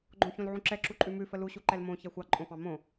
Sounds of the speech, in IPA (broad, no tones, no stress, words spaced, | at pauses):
ɡ͡ǃõçõlʕũǁɛ ǁuǃʼʉmʉ fəlu ɕuǃɛlmõ çɛxʷɑ ǃʼõfɑ̃mõ